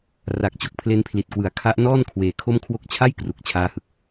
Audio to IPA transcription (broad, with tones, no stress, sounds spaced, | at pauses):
r a˨˩ k̚ t͡ɕ o˥˩ k̚ pʰ l e˦˥ n pʰ l i˨˩ t̚ k w ɯ˩˦ a̯ kʰ a˦˥ ʔ n ɔː˥˩ n kʰ w eː˧ kʰ o˥˩ m kʰ w o˦˥ k̚ t͡ɕʰ a˥˩ j k r u˨˩ k̚ t͡ɕʰ aː˦˥ h ɯ˨˩ k̚